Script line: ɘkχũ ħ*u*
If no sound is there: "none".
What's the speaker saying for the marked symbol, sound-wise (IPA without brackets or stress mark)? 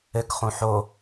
o